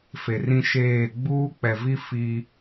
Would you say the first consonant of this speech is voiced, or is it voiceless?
voiceless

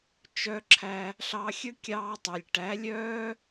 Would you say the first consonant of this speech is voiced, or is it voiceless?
voiceless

